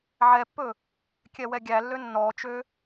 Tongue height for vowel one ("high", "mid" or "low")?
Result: mid